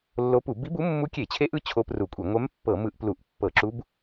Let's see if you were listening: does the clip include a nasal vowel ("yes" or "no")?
no